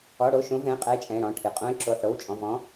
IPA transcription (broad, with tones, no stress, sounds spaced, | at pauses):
ɔ˩˧˩ ɽ o˩˧˩ ʃ õ˨˦ v ɛ̃˩˧˩ qʼ ɛ˨˦ ɪ̯ t͡ʃʼ ɛ̃˩˧˩ ɽ ɔ̃˩˧˩ ʈʰ ɨ˩˧˩ qʼ õ˨˦ ɪ̯ ǁ o˩˧˩ ħ ɽ o˩˧˩ w t͡ʃʼ ɔ̃˩˧˩ v ɔ̃˨˦